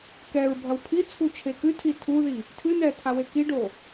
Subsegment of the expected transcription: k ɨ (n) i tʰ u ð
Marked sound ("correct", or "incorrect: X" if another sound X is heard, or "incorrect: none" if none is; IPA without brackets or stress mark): incorrect: tʰ